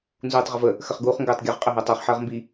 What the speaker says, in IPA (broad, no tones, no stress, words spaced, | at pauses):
nzuːtˤʁəvə | xəχɡuːχŋɡəːtˤɡʲɐʁ qʼəɦɐːtˤaχ ħəːʁmbi